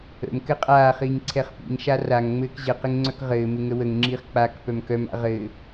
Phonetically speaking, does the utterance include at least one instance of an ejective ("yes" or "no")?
yes